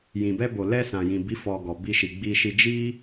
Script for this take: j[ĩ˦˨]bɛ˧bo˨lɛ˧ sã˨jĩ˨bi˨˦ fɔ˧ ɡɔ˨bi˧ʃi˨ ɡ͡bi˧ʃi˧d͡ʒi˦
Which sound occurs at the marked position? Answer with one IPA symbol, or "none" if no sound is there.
ĩ˨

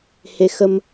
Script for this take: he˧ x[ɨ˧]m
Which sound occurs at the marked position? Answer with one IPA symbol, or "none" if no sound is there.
ə˧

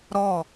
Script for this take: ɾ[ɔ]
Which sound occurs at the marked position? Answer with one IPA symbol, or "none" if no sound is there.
ɔ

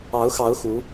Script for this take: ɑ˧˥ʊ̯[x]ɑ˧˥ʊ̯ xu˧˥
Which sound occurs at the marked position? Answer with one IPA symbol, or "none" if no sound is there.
x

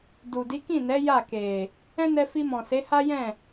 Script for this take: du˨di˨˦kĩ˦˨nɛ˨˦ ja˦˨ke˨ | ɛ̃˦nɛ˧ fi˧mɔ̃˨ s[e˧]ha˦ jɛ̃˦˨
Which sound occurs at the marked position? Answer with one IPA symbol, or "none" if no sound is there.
e˨˦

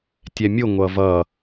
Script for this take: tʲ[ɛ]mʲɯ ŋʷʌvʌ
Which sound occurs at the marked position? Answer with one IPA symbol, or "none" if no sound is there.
ɛ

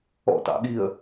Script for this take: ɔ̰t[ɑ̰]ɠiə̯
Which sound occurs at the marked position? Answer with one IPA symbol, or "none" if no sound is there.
ɑ̰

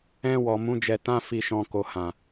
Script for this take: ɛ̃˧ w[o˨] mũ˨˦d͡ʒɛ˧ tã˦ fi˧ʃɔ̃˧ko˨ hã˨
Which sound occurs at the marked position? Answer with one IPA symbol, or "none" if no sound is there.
ɔ˨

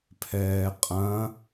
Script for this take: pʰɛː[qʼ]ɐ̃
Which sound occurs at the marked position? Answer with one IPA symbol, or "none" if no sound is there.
qʼ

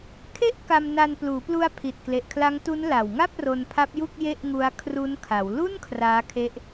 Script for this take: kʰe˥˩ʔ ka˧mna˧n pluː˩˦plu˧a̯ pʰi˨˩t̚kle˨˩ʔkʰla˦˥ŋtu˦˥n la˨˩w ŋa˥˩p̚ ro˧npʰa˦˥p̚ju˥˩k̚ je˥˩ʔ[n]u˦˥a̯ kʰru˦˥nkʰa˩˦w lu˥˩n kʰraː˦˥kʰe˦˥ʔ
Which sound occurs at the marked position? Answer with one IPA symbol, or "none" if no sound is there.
ŋ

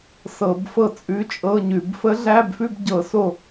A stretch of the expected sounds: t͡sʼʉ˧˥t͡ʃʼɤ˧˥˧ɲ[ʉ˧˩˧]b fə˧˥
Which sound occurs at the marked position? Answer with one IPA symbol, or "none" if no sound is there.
ʉ˧˩˧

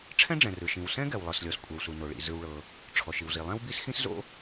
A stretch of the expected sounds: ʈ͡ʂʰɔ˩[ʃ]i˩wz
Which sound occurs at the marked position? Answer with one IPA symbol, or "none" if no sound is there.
ʃ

